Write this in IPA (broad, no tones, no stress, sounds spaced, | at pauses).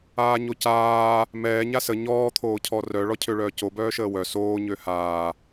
aː ɲ o c aː | m ɛː ɲ a s ə ɲ ɔː t̪ʰ oː cʰ ɔ r œ ɭ ɔ cʰ ø ɭ œː c o b œː ʃ əː w œ s oː ɲ ø h aː